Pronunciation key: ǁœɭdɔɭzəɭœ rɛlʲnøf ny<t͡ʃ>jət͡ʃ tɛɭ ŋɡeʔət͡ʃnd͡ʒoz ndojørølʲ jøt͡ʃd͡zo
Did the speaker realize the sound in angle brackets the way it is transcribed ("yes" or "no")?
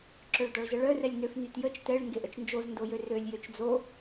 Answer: no